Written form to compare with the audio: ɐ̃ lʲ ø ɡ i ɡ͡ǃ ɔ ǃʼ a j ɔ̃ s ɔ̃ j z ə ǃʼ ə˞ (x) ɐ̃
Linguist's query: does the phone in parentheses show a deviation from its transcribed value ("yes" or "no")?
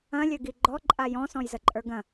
yes